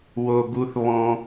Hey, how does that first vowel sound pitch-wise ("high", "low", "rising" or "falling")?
high